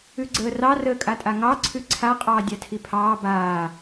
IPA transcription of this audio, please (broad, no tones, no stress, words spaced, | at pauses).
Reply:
ʉɡ͡ǀəːrɑ rəːkʼatʼaŋɑ ǀʰʉǀʰa qʼɑːdʲatʰipʰɑː baː